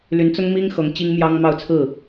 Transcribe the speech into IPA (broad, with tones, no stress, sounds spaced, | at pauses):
l y˧˥ n t͡s ʊ˥ ŋ m i˥ ŋ x ɤ˧˥ ŋ t͡ɕ i˥ ŋ m j ɑ˥ ŋ m ɑ˥˧ ʊ̯ t͡sʰ ɹ̩˥˩